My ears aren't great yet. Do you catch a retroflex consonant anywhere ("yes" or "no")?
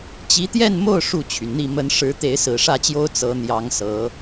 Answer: yes